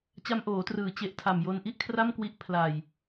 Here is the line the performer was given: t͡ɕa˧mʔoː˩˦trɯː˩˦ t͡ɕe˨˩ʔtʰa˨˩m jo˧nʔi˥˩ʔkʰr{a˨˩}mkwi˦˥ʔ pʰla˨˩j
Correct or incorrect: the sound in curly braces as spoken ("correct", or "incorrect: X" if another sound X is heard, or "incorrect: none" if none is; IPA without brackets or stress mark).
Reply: incorrect: a˥˩